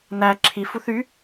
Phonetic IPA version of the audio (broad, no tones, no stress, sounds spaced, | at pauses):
n æ ǁʰ i f u θ y